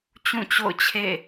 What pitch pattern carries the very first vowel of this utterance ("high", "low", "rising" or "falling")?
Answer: falling